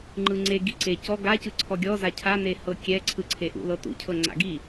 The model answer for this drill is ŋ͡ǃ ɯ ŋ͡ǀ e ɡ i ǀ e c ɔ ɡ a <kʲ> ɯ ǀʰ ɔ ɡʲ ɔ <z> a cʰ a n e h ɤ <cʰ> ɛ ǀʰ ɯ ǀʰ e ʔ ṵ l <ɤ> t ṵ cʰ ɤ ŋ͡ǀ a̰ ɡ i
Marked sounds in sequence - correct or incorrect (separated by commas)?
incorrect, correct, incorrect, correct